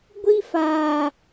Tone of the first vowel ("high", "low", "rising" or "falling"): high